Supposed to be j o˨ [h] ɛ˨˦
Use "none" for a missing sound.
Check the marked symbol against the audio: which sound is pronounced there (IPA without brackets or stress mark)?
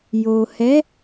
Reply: h